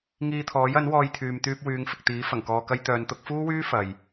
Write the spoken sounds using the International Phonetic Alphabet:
ŋ iː˧ t̪ʰ ɔː˨˥ j ɐ˨˥ n w ɔː˧ j t̪ʰ yː˨ m t̪ yː˧ p̚ w yː˨˧ ŋ f ɪ˨ k̚ t̪ iː˨˥ f ɐ˨˩ ŋ k ɔː˧ k ɐ˥ j t̪ œː˨˧ n t̪ ʊ˨˥ k̚ f uː˥ w yː˥ f ɐ˨ j

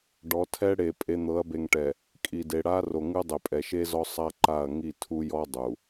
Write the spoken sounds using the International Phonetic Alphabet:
ɖ ɔ˨˦ tʰ ɛ˦ ɽ e˨ pʼ e˨ n̪ ɤ˨˦ ɐ̯ b e˨ ŋ ʈ ɛ˨ | kʼ i˨ d e˨ ɽ a˦ r o˨ ŋ ɯ˦ dˤ e˨ pʼ ɛ˨ ʃ e˦ z ɔ˦ sˤ a˦ ǃ a˦˨ ɐ̯ ŋ i˦˨ tʰ u˦ j ɔ˦ dˤ u˨

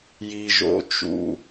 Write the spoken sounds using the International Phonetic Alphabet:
j i˧ ʒ o̰˧ t͡ʃ ṵ˧

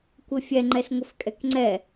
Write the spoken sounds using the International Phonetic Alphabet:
kʷ ɘ fʲ ɛ ŋ͡ǃ ɛ s ŋʷ ɘ f kʼ ɛ k ŋ͡ǀ ɛ

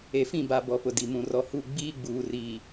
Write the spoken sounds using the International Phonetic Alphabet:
e˨ f ĩ˦˨ b a˨ b ɔ˨˦ p ʊ˨ d i˨ m ũ˨ r ɔ˨ h u˦˨ ɡ͡b iː˦ ɡ͡b uː˨ r iː˨

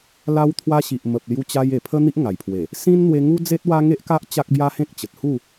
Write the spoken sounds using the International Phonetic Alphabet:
l a˧ w t̪ʰ w a˧ ɕ i˨ ʔ m ə˨ p̚ l j u˧ t͡ɕ a˧ j e˨˩ pʰ ə˦ n̪ i˦ ʔ ŋ a˨˩ j pʰ w e˨˩ | s ĩ˦ n n̪ w e˧ ŋ u˦ d͡z e˦ t̚ w a˦ ŋ e˦ ʔ k a˦ ʔ t͡ɕ a˦ k̚ b j a˦ h ẽ˦ k̚ t͡ɕ ə˨ t̚ h u˥˧

